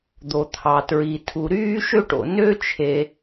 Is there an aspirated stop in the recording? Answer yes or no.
yes